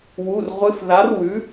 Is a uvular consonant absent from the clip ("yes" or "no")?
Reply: no